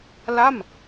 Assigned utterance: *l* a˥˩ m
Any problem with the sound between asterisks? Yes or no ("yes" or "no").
no